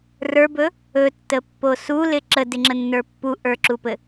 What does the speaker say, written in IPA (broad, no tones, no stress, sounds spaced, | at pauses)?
r ə˞ b ɵ | ɵ tː ə pː o s u l ɪ ǁ ə d ɪ ŋ͡ǁ ə nː ə˞ pː u ʔ ə˞ ǁ u p ɘ